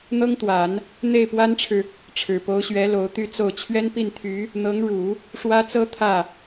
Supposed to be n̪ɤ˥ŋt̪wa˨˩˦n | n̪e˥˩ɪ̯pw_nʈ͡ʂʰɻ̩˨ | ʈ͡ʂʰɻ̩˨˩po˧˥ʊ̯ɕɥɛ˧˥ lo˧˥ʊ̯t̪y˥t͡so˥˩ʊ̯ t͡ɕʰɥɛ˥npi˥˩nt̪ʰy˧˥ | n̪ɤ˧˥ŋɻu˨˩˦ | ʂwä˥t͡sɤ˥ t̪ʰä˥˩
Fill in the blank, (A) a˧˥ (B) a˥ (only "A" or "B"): B